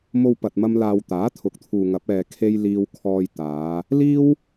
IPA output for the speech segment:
m o˧ w p ɐ˨ t̚ m ɐ˧ m l aː˨ w t̪ aː˨˥ t̪ʰ ʊ˨˥ k̚ t̪ʰ uː˨ ŋ ɐ˨˥ p̚ ɛː˧ kʰ e˥ j l iː˧ w kʰ ɔː˧ j t̪ aː˨˧ | l iː˥ w

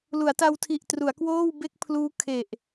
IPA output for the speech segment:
l u˩˦ a̯ t a˧ w tʰ i˨˩ ʔ t r u˩˦ a̯ k w oː˥˩ w b e˥˩ k̚ pʰ l uː˦˥ kʰ e˨˩ ʔ

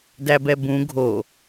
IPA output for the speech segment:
d æ b ɛ b ũ ɡʱ o

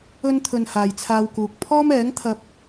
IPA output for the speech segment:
ɵ˥ n t̪ʰ ɵ˧ n h aː˨ j t͡sʰ aː˧ w k uː˨ k̚ pʰ ɔː˥ m ɛː˨˥ ŋ t̪ʰ ɐ˧ p̚

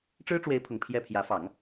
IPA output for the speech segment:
ʈ͡ʂ ɻ̩˥ ʈ͡ʂ w e˧˥ ɪ̯ pʰ ʊ˨˩ ŋ pʰ j ɛ˥˩ pʰ j ä˧˥ f ɑ˨˩˦ ŋ

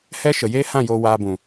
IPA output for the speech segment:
h ɛ˦ ʃ ə˨ j eː˦ h ã˦˨ j oː˧ w aː˧ b ũ˨

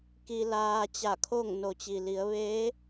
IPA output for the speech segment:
k i˧ l aː˧ t͡ɕ a˧˩ kʰ o˥˨ ŋ n o˩ t͡ɕ i˩ l i˩˧ ə̯ ʋ eː˧˥

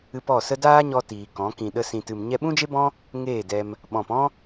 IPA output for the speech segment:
ɨ˧ p ɔ˦˨ s ə˦ d aː˦ ɲ ɔ˧ t iː˨ k ɔ̃˨˦ k ĩ˨ ɗ ə˧ s ĩ˨ t ɨ˨ m ɲ ɛ˧ ɓ ũ˦ d͡ʒ e˦ b ɔ̃˦ | ŋ eː˦˨ d ɛ˧ m | ɓ ɔ̃˨ p ɔ̃˦

